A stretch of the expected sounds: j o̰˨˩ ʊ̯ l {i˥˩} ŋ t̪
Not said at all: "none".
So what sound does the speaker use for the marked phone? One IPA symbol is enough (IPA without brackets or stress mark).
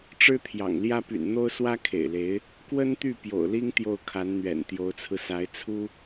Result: i˥